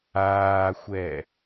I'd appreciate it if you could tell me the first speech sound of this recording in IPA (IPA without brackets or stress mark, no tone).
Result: aː